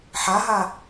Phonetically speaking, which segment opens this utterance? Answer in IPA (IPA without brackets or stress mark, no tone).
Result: ħ